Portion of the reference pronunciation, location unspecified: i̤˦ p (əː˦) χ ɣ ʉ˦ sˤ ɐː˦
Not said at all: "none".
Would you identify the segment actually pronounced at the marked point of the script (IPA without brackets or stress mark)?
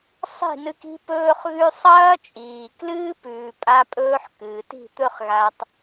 ɵː˦